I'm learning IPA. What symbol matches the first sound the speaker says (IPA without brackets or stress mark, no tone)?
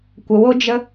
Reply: kʷ